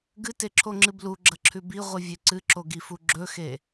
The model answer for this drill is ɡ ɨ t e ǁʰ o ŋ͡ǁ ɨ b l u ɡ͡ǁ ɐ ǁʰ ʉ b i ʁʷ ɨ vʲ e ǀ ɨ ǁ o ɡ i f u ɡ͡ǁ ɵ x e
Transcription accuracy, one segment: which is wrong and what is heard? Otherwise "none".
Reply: none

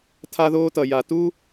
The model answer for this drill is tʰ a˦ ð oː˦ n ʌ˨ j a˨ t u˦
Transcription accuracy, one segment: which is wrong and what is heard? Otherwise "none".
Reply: n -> t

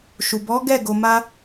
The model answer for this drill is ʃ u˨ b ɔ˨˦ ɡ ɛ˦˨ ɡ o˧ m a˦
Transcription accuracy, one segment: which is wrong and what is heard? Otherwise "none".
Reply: none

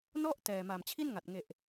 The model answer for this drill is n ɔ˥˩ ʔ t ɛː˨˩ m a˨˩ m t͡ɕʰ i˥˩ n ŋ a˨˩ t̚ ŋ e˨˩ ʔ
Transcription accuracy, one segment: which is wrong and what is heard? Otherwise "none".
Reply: none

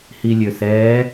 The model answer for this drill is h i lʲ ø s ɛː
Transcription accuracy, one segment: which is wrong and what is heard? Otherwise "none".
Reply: none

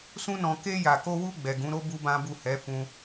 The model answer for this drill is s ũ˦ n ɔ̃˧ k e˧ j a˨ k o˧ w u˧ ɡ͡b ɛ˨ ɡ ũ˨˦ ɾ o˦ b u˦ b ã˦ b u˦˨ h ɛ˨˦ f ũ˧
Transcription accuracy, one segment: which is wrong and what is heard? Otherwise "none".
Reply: none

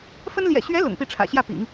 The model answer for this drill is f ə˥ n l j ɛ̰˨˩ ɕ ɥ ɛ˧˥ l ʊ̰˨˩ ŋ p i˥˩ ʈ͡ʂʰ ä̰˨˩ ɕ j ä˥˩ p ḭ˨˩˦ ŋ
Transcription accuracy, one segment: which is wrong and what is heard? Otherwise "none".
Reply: none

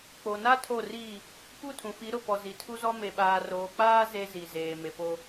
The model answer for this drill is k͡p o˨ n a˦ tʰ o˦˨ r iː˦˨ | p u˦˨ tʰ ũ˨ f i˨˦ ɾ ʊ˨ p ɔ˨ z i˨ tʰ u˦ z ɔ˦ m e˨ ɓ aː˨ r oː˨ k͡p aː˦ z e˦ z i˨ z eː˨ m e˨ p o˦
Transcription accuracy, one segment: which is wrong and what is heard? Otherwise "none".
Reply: none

